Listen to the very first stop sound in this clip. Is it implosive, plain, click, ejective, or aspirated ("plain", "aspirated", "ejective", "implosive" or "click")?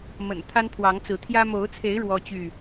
aspirated